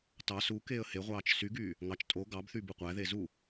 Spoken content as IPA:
t ɑ s u k eː ə̯ h e ʁʷ ɑː t͡ʃ s y ɡ yː | ŋ ɑ t͡ʃ tʼ o ɡ ɑ b θ y b ɯ qʷ æ ð e z u

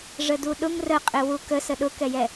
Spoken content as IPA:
ʐ ə d u ɗ ʊ ŋ r ə qʼ ɪ w u k ə s ə ɗ ʊ k ɛ j ɛ

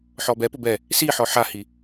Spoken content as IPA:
ħ ɔ b ɛ p ʊ b ɛ | s i ħ ɔ ħ a h i

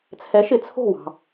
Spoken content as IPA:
t͡sʰ ɛ˩˥ ʃ ɪ˩ t͡sʰ o̤˥˩ w ɑ̤˩

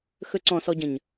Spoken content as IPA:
x ɵ ǀ ɔ̃ s ɔ ɟ ə̃ ɲ

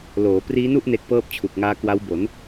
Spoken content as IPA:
l oː˩˦ p r iː˦˥ n u˥˩ ʔ n e˦˥ k̚ p ɤː˥˩ p̚ t͡ɕʰ u˨˩ k̚ ŋ aː˦˥ k w a˦˥ w b o˩˦ n

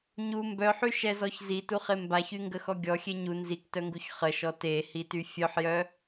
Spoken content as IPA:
ɲ u m b œ ħ y ʃ ɛ z ɔ ç z i t u χ e m b a ç y ŋ ɡ ə x ɔ ɡʲ ɔ xʲ e ɲ u n z i k t œ ŋ ɡ u ç χ ə ʃ ɔ t e h i t y fʲ œ ħ j œ

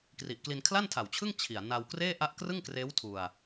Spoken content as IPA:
k r i˨˩ ʔ k l i˧ n kʰ l a˥˩ n tʰ a˨˩ w t͡ɕʰ ɯ˥˩ ŋ t͡ɕʰ i˨˩ a̯ n a˧ w k r eː˥˩ ʔ a˦˥ ʔ k r ɯ˥˩ ŋ k r eː˦˥ w tʰ u˧ a̯

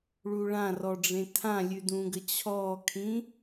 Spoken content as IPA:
ɭ u ɭ ã r ɔ ɖ͡ʐ ẽ tʰ ã lʲ ʉ d ũ ɡ ə t͡ɕʰ ɔ kʰ ĩ

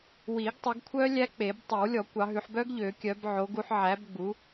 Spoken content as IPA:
w i˨˩˦ ɡ tˤ ɵ˨˦ ɡ kʷʰ œ˦˥ lʲ æ˦˥ k͡p e˨˩˦ b tˤ ɵ˨˩˦ w lʲ ɔ˨˩˦ kʷ ɑ˨˦ ɦ ʉ˨˦ ħ b œ˦˥ ɡ ʎ ø˨˩˦ kʲ œ˨˦ b ʕ o˨˦ ɡ u˨˦ ħ ʕ æ˨˦ b ɡ͡b u˨˦

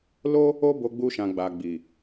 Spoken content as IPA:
l o˦ | o˦ b o˧ ɡ͡b u˧ ʃ ã˨ ɡ͡b a˨ ɡ͡b i˨

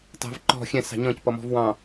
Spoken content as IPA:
t ɑ̤ v ǃ ɔ̤ xʲ ɛ̃ s ɑ̤ ɲ ɔ̃ c p ʌ m ɔ̤ v w ɑ̃

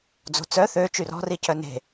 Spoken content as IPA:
d͡z o̤ t͡s œ θ ø t͡ʃ y r ɔ̤ r i c œ n e̤

